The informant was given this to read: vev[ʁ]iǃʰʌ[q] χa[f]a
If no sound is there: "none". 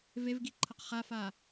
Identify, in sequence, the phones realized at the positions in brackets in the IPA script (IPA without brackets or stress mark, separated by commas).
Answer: ɡ, q, f